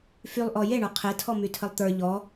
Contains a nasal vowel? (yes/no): no